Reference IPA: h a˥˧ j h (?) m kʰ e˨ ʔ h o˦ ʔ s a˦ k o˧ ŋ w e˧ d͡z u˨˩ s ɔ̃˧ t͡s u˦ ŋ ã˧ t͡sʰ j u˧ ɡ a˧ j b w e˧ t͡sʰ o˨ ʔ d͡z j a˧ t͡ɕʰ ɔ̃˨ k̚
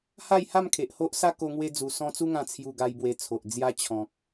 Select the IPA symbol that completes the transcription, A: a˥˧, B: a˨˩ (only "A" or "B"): A